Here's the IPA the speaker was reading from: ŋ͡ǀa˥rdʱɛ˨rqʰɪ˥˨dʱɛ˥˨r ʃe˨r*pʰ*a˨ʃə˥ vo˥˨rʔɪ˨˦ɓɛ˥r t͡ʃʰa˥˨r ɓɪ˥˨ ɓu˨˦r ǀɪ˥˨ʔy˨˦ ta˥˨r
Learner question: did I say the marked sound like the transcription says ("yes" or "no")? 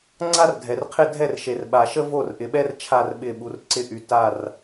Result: no